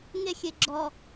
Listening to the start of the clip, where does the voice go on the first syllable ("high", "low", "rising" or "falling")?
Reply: high